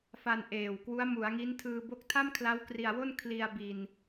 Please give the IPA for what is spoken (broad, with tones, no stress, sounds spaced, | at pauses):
f a˧ n ʔ eː˨˩ w k w u˦˥ a̯ m u˩˦ a̯ ŋ i˦˥ n tʰ ɯː˧ b o˦˥ k̚ tʰ a˥˩ m kʰ l a˦˥ w k r i˧ a̯ w o˥˩ n kʰ l i˧ a̯ b i˧ n